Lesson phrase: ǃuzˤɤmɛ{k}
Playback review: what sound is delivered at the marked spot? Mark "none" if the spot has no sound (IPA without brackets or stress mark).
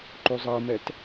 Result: t